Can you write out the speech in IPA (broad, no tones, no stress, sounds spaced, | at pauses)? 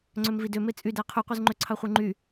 ŋ͡ǀ ø m v i d ø m e t͡sʼ y d æ qʰ y qʷ ɯ z ŋ͡ǃ ø ǀʰ ɑ χʷ ɯ ŋ͡ǃ y